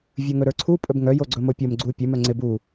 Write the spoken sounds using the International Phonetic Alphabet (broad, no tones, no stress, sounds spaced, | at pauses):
vʲ ɵ ŋ ɵ ɾ ə˞ ǀʰ u pʼ ɵ b ŋ œ j o ɡ͡ǀ ɵ m o pʲ o m ɡ͡ǀ u pʲ ɵ m œ ŋ͡ǀ ɪ b u